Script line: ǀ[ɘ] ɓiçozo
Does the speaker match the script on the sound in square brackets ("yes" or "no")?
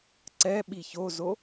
no